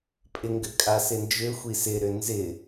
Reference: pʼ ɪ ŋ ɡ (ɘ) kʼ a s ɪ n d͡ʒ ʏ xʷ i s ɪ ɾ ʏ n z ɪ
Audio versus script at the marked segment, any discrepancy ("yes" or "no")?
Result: no